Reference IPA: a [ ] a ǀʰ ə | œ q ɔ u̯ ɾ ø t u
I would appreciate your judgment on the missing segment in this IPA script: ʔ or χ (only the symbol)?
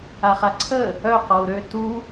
χ